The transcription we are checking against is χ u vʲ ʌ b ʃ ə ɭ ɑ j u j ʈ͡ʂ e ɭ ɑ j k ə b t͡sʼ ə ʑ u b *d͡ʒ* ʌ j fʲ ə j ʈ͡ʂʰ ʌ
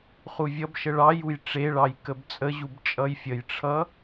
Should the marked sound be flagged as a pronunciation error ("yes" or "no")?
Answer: yes